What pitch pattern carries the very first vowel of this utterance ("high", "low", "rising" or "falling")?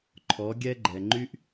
rising